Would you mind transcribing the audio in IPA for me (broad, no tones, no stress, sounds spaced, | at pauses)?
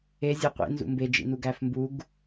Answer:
e zʲ e qʷ ḭ n z ṵ m b e d͡ʒ ḭ n u ɡ æ f m b u ɡ